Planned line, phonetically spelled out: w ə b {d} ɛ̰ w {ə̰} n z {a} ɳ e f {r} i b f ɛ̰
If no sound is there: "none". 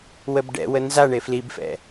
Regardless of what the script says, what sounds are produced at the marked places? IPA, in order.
ɖ, ə, a, l

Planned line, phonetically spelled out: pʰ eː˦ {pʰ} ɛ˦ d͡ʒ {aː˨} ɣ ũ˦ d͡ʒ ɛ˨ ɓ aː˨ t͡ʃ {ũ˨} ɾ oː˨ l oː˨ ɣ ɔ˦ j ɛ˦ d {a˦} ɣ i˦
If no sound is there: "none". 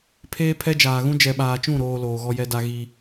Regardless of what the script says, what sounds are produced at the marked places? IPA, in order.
pʰ, aː˨, ũ˦˨, a˦

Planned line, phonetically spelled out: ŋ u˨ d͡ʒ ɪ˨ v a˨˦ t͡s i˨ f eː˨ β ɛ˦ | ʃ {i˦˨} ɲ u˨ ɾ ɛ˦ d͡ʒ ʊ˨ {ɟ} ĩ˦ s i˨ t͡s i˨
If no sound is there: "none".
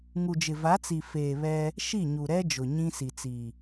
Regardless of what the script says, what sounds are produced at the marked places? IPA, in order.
i˦˨, ɲ

